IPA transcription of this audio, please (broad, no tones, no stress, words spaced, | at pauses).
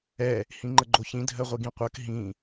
ɛ | hĩŋ͡ǃəɡ͡ǃoçĩ dʱɜʁʷiɡĩqʷɜk ɦĩ